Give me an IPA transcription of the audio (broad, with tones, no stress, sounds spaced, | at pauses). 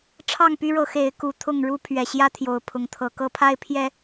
ʈ͡ʂʰ ɑ˥˨ ŋ p y˦ ɻ ɤ˨˦ x e˨˦ ɪ̯ k u˨˦ t̪ʰ ʊ˥˨ ŋ ɻ u˦ pʰ ɥ ɛ˨˩ ɕ j ä˦ t̪ʰ j o˨˩ ʊ̯ pʰ ʊ˨˦ ŋ t̪ʰ ɤ˨˩ k ɤ˦ pʰ a˦ ɪ̯ pʰ j ɛ˦